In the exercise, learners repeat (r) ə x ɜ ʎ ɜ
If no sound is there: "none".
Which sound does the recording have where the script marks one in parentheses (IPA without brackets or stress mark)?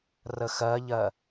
r